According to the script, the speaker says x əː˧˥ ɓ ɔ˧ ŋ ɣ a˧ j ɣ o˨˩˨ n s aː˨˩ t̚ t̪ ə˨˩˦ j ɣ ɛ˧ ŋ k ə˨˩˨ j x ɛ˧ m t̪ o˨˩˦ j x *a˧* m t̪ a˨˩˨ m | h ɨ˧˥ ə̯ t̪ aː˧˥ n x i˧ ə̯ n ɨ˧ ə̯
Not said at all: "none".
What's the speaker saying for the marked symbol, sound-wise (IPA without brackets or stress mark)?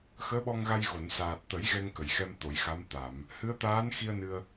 a˧˥